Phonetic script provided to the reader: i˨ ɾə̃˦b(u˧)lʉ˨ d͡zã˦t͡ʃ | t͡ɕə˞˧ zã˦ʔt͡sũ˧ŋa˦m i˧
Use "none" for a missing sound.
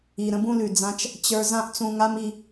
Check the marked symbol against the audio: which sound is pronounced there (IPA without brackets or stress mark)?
ũ˧